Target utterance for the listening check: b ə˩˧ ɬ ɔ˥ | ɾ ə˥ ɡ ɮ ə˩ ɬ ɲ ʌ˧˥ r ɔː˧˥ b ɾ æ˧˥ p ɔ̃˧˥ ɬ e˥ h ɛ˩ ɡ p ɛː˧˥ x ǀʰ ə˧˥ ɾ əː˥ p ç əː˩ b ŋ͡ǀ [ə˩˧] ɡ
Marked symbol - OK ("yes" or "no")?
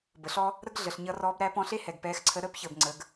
yes